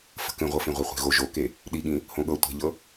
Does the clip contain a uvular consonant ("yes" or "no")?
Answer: yes